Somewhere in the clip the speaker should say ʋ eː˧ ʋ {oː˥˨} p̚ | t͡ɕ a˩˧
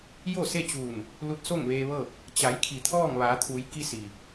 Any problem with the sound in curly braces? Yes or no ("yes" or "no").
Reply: yes